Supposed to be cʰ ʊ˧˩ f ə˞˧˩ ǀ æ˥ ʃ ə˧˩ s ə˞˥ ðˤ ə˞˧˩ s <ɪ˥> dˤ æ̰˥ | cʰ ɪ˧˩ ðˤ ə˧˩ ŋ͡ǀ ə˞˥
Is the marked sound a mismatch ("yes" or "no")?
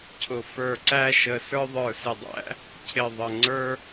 yes